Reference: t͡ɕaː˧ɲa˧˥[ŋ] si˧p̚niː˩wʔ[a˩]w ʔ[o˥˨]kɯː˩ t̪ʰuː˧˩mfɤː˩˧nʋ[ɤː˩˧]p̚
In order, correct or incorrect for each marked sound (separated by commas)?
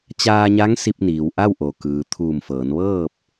correct, incorrect, incorrect, incorrect